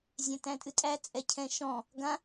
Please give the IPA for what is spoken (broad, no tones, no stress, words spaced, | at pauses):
zʲæ̃tæ̃tʼɨtʼæ t͡sʼɛcʰɛ̃ʃɔ̃ | ɡã